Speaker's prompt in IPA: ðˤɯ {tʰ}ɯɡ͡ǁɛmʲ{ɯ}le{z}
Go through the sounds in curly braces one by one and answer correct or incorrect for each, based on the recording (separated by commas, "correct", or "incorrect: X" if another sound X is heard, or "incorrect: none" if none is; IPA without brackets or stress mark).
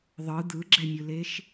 incorrect: d̪, correct, incorrect: ʃ